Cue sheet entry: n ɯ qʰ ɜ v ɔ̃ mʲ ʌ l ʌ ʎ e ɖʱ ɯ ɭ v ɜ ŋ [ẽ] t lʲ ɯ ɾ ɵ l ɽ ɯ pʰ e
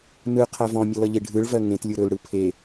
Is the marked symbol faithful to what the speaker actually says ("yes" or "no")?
yes